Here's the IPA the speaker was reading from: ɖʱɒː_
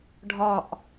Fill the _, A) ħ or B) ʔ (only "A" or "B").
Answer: B